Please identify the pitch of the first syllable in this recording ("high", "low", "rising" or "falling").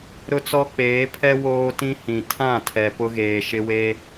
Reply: high